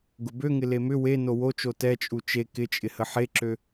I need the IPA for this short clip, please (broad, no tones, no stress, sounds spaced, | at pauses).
ɡ ʊ b ø ŋ ɪ l e m ʏ w e n o w o t͡ʃ o t ɛ t͡ʃʼ u t͡ʃ e k ɪ t͡ʃʼ ɪ h ə ħ e ǁ ø